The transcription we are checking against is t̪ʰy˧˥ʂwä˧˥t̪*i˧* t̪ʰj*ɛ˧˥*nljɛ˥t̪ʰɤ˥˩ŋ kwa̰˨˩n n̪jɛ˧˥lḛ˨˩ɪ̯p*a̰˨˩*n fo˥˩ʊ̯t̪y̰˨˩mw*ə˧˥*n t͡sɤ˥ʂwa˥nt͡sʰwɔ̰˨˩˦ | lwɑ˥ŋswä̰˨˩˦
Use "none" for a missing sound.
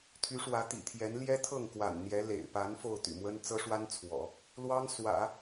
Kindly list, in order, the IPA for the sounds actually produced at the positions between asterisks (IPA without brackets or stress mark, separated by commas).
ḭ˨˩, ɛ˧˥, a˧˥, ə˥